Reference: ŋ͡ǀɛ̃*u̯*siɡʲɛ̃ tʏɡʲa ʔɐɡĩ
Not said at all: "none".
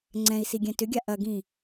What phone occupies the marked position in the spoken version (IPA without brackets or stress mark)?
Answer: i̯